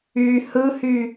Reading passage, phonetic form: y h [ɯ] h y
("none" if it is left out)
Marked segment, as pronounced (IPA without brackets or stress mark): ɯ